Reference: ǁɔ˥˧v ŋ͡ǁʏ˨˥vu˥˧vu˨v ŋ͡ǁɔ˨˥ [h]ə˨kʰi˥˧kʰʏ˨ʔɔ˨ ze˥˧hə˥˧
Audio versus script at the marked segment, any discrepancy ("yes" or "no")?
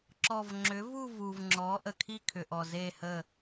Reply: yes